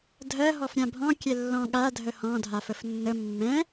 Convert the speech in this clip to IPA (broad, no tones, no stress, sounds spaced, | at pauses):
dʱ ɜ ɦ ɔ f ɾʲ ã bʱ ɔ̃ kʲ ɛ lː ɔ̃ ɠ a dʱ ə h ɔ̃ dʱ a f ə f nː ə mː ɛ̃